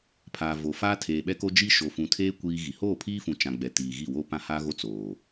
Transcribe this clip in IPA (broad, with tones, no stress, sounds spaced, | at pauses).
pʰ aː˨ v o˨ f aː˦ tʰ eː˨ ɓ ɛ˦ k o˦ d͡ʒ i˦ ʃ o˨ f ũ˨ tʰ eː˦ kʷ iː˦ ɣ i˨ h oː˦˨ pʰ iː˦ f ũ˨ t͡ʃ ã˨ ɡ͡b ɛ˨ t iː˨ ɣ i˦˨ w o˦ p ã˦ h aː˦ ɣ o˦ t͡s oː˨